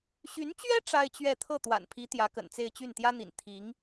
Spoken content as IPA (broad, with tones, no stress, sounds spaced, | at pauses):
ɕ y˧˥ n t͡ɕ ɥ ɛ˥ ʈ͡ʂ a˥ ɪ̯ t͡ɕ ɥ ɛ˥˧ t̪ʰ ɤ˥˩ t̪ w a̰˨˩ n pʰ i˧˥ t̪ j ä˧˥ k ə̰˨˩ n t͡s e˥˧ ɪ̯ t͡ɕ y˥˩ n t̪ j ä˥ n̪ ḭ˨˩ n t̪ʰ i˧˥ ŋ